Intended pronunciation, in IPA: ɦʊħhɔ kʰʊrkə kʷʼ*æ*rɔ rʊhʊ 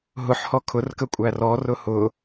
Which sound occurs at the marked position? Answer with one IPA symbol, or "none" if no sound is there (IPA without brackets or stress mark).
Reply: æ